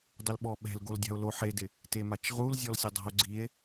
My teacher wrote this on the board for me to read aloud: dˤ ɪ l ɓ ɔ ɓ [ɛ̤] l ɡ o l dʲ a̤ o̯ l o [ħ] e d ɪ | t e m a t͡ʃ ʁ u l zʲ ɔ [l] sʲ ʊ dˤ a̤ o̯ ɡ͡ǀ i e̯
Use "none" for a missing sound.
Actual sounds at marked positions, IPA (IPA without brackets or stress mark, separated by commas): ɛ̤, ħ, l